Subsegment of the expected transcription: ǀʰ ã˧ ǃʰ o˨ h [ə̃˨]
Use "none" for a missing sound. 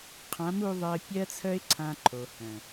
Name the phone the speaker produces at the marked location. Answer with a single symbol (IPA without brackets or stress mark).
œ̃˨